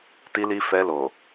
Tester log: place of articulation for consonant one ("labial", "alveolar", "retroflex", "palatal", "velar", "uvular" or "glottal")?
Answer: alveolar